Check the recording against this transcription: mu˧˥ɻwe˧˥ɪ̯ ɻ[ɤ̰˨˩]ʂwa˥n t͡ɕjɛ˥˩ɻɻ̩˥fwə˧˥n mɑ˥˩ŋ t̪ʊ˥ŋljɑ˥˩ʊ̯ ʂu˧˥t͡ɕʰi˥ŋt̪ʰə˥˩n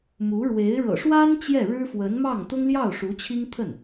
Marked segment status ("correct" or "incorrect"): correct